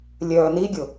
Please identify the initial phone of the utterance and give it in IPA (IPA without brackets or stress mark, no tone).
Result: lʲ